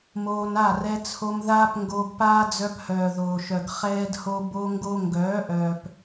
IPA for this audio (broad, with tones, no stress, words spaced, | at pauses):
moː˧n a˦˨rɛ˧t͡sʰo˧m ðaː˦pŋɡoː˧ɡpaː˦ d͡zœ˧phœː˨ðoː˨ʃœ˨ɡ χɛː˦dho˦ bo˦ŋɡo˦ ŋɡœː˨˦ʔœː˨p